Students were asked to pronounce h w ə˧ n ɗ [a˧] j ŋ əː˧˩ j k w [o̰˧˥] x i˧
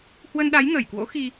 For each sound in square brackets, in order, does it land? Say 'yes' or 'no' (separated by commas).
no, yes